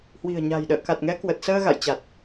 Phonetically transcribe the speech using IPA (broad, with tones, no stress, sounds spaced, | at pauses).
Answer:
h w i̤˨˩ ə̯ ɲ a̤˨˩ j ɗ ə̰ː˧˨ k a˨˩ t̚ ŋ ɛ˨˦ k w ə˨˩ t̚ s əː˧ ɣ a̰˧˨ j t͡ɕ a˨˩ t̚